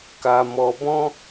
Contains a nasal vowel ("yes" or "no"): yes